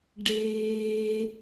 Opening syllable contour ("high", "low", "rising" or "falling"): high